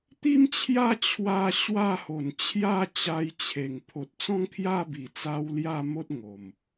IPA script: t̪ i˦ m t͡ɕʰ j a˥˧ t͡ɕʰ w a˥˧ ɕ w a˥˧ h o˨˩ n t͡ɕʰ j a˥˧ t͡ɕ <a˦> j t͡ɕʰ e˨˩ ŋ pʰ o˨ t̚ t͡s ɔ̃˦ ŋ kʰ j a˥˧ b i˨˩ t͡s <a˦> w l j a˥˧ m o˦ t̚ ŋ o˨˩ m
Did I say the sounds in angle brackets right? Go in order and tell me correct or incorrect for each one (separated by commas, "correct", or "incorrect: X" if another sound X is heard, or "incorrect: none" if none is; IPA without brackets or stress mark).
incorrect: a˧, incorrect: a˧